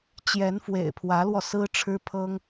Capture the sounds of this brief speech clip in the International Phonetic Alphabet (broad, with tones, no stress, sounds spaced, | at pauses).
t͡ɕ j ɛ˧˥ n f w ḛ˨˩ ɪ̯ pʰ w ä˧˥ l w ɔ˧ s ɹ̩˥ ʈ͡ʂʰ ɻ̩˥ pʰ ɤ˥ ŋ